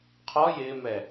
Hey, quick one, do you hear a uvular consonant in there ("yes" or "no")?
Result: yes